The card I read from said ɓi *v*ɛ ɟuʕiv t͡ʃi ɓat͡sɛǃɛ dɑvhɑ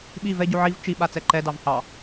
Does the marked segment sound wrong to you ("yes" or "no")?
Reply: no